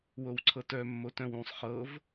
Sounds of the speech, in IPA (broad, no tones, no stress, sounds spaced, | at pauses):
w o w ǀʰ ɤ t œ mː o t œ̃ w ũ sˤ χ ɤ v